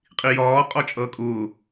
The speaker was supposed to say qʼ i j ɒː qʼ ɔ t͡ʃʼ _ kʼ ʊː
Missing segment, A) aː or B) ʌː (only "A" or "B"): B